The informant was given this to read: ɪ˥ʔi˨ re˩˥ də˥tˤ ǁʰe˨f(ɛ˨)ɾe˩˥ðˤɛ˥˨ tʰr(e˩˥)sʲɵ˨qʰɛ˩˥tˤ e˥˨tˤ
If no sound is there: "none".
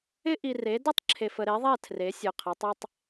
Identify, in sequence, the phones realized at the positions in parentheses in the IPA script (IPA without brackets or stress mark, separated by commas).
ə˨, e˩˥